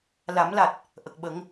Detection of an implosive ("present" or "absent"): present